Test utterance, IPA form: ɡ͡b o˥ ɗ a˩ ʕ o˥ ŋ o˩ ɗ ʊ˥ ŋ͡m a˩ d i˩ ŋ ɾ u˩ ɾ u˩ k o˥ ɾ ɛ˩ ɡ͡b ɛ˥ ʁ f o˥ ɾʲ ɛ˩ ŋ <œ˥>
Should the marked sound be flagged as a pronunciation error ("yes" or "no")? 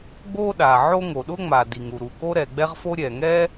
yes